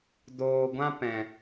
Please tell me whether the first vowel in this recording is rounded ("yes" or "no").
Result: yes